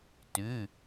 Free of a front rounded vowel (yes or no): no